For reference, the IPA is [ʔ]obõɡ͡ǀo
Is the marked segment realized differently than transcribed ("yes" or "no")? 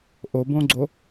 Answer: no